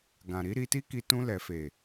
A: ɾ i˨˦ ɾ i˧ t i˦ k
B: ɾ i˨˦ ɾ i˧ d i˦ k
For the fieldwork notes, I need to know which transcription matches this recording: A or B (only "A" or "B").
A